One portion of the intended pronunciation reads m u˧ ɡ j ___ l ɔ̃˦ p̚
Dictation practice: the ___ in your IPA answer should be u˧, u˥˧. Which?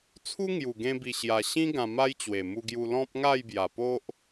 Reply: u˧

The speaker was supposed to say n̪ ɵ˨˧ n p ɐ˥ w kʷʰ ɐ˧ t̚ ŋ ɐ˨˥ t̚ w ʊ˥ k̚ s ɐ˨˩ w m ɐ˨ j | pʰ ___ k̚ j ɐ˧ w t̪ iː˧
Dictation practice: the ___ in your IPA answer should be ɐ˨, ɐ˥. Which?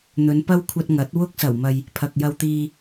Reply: ɐ˨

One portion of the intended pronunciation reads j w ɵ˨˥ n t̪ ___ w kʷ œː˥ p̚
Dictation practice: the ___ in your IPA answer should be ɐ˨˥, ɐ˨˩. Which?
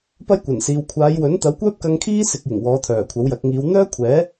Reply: ɐ˨˥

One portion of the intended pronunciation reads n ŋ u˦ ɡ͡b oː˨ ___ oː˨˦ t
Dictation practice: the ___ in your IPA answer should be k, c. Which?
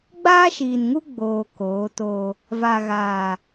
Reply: k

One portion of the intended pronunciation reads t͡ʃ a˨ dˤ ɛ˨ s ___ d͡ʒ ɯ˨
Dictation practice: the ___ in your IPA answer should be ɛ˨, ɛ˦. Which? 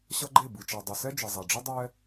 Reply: ɛ˦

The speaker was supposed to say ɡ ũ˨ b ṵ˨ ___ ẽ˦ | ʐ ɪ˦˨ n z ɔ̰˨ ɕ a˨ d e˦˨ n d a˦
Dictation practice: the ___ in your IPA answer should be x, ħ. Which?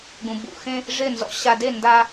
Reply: x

